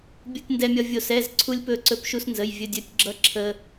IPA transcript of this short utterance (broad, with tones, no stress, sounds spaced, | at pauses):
bʲ u˧ tʲ n d ɛ˧ mʲ ʌ˧ vʲ o˧˩ s ɛ˩˧˩ z ǀʰ u˧ lʲ p ɵ˧˩ ǀ ɵ˧˩ p ʃ u˧ s n z ə˩˧˩ j vʲ ɵ˧ dʲ ɵ˩˧˩ tʲ ɡ͡ǁ ʌ˧ ǁʰ ə˧